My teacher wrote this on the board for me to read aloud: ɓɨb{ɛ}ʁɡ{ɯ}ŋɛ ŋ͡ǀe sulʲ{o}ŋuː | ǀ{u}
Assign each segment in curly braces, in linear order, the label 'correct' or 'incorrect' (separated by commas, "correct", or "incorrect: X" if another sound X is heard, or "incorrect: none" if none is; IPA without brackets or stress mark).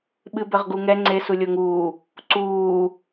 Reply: incorrect: ɘ, incorrect: u, correct, incorrect: uː